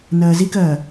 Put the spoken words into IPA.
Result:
n ɜː z i k ɜː

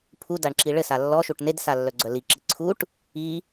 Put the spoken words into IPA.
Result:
pʰ u d a ɳ ǁ i ɭ ɘ s a lː ɔ ʃ u ʈ n e d s a lː œ ɡ͡ǀ œ l i ǁ i ǀʰ u ʈ | i

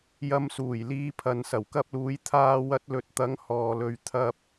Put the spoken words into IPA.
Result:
j ɐ˧ m s uː˨˩ j l iː˨˧ pʰ ɐ˨ n s ɐ˨˩ w k ɐ˧ p̚ l uː˨˧ j t̪ʰ aː˧ w ɐ˧ t̚ l ɵ˨ t̚ t̪ ɐ˨˥ ŋ h ɔː˨ l ɵ˨ ɥ t̪ʰ ɐ˧ p̚

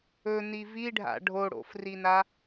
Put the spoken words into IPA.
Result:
ɵ n i v i ɖʱ a̰ ɖʱ o ɽ o̰ f r i n a

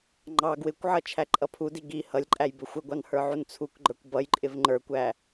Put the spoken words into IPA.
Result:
ŋ͡ǃ ɑ ɡ w ɪ kʷ ʕ ʌ t͡ʃʰ æ ǃʼ ʌ pʰ u d i ɡ i h ʌ lʲ ǃʼ æ j b ɪ xʷ ɪ ɡʷ ɑ n h ə˞ ʕ u n t͡sʰ u k ɡ͡ǃ ə˞ kʷ b ʌ j ǃʼ ɪ v ŋ͡ǃ ə˞ kʷ æ

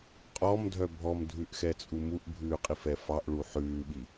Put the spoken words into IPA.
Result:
qʼ ɔ m dʱ œ bʱ ɔ m dʱ ʉ ʔ x ɛ t͡sʼ u m u ʔ bʱ ʉː qʼ i f ɛ f ɑ ʔ ɭ u ħ ʉː ɓ i

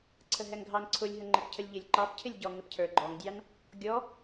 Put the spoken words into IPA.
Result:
ǀʰ ə ɦ ɛ ŋ ɡʱ ɑ n ǀʰ ʊ lʲ ɦ ə ŋ͡ǃ ɪ p cʰ ə lʲ ʎ ɪ lʲ ǃ ɑ p cʰ ɪ lʲ ɟ ɔ ŋ ɪ p cʰ ə˞ ɡ͡ǃ ɔ ŋ dʲ ɑ n | ɡʲ ɔ

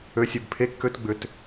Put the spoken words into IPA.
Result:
ø˨˩ sʲ ø˨˩ b pʰ e˨˥ kː ø˨˥ t ɡ͡b ʏ˨˩ t

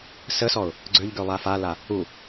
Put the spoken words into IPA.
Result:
s ə s ɔ ʊ̯ | ɡ͡ǀ ø ʎ ɡ ø lˠ a f a l a | u

